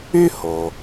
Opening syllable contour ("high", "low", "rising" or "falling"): high